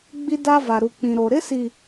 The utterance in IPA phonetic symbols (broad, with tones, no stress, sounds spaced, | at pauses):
ɡ͡b i˦ d a˦ v a˨ ɾ u˨ k͡p ĩ˨ ɾ o˨ ɾ ɪ˦ s i˨